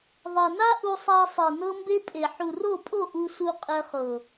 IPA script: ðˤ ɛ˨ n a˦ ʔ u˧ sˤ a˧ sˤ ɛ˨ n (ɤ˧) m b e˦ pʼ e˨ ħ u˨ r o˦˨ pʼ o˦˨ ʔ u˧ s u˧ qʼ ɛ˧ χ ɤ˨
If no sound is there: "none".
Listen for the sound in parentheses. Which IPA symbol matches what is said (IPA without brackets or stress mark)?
ɤ˦